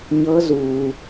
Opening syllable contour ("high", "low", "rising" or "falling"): rising